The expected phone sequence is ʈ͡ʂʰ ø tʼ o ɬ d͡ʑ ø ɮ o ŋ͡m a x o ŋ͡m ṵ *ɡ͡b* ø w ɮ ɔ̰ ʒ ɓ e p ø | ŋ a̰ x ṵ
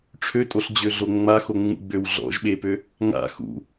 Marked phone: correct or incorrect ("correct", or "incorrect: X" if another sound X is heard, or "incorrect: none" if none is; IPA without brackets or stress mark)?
correct